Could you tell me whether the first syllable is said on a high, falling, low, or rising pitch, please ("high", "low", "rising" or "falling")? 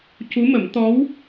rising